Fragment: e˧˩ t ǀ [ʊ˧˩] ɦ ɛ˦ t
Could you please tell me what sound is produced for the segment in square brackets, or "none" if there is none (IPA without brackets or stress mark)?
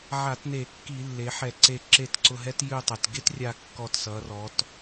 ʊ˧˩